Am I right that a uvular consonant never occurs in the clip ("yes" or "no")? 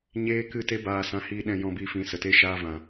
yes